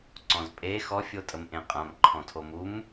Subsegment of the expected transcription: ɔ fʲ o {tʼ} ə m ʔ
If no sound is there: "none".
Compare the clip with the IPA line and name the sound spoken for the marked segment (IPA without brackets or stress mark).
tʼ